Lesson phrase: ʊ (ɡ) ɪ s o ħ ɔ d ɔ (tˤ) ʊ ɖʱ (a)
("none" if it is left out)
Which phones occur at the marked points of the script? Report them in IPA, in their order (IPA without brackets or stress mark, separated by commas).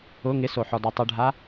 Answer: ŋ, tˤ, a